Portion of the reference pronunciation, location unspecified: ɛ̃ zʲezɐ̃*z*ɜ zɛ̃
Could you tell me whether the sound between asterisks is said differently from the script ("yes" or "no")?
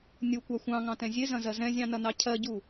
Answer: no